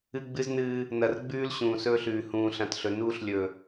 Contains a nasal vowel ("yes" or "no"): yes